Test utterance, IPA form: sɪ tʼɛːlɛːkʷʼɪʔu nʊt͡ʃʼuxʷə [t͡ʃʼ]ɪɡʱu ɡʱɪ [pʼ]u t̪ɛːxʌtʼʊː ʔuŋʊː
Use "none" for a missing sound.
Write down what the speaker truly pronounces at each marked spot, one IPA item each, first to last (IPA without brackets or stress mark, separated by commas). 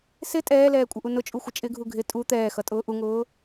t͡ʃʼ, tʼ